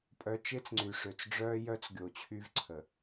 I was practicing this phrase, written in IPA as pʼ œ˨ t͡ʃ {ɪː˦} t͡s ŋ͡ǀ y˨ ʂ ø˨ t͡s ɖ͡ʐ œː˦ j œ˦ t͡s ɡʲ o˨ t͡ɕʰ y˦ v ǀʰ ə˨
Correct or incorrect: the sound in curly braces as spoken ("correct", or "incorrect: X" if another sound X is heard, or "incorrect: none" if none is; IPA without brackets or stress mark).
correct